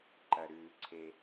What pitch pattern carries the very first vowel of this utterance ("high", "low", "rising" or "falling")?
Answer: low